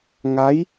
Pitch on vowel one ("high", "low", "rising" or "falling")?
rising